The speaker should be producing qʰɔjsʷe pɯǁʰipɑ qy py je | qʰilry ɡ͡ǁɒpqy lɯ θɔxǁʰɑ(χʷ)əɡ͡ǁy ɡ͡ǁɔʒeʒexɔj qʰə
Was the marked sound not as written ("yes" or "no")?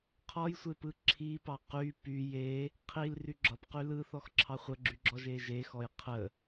no